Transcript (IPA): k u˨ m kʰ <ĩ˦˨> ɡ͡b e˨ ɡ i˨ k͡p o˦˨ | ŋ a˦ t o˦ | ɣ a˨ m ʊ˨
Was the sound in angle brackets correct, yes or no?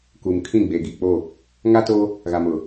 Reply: yes